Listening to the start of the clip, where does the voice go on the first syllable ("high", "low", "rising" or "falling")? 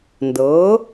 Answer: rising